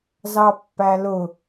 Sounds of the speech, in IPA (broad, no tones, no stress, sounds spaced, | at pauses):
z ɑ pː æ l ʊ